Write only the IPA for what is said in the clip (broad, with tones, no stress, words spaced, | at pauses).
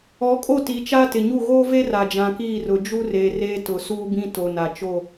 ɔ˨˦kʼo˦˨ ti˨˦t͡ʃa˦tɪ˨ɲu˦˨ ɣoː˦ve˦ ra˨d͡ʒã˨kiː˦˨rʊ˨ d͡ʒu˦reː˨ reː˦tʊ˨suː˦bĩ˦ to˨na˨t͡ʃo˦˨